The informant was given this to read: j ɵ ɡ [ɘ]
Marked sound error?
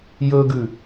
yes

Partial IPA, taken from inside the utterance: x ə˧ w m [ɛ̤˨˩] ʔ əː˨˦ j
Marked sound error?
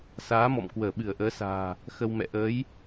yes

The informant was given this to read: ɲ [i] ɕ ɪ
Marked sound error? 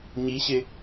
no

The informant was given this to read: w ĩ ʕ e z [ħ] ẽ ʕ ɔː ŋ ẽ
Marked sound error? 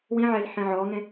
no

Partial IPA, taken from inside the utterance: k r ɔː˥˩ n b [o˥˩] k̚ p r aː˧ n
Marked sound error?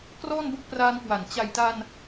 no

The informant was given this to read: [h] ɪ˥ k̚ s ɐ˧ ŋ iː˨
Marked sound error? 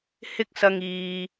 no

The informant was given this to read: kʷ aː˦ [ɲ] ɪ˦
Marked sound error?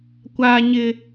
no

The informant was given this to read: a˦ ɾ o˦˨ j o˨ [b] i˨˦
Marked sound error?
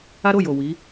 yes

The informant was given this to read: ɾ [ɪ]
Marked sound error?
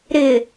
no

